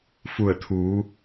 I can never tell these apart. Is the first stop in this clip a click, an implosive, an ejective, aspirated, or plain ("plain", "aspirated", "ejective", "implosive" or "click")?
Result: aspirated